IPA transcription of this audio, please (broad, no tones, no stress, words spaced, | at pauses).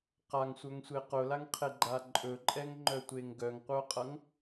qaŋsʷœŋsʷe qʊlaŋqʰeɡ͡ǃa ǃʼɵǃʼɛŋŋ͡ǃœtʷeŋ ɡœŋqʷœqʼʌŋ